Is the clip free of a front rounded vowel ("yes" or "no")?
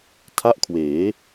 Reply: yes